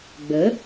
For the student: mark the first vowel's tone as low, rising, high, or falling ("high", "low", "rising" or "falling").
rising